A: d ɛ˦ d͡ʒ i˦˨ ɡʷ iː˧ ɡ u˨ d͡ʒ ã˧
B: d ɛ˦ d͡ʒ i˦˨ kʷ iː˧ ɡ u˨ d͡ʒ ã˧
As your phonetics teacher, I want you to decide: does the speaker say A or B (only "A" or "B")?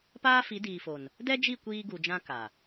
B